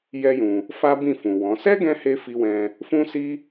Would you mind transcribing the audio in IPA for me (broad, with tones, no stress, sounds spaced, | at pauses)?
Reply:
j ɛ˦ j ũ˧ | f a˦ b ĩ˦˨ f ũ˨ w ɔ̃˨˦ s ɛ˦ ɡ ɛ̃˧ h e˦ f i˦ w ɛ̃˦ | f ũ˦ s i˦